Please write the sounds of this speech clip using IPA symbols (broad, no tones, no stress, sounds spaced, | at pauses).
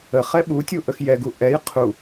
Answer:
ə χ ɛ ɓ u tʲ u ʔ ə x j ɛ ɡ u ʔ ɛ j qʰ u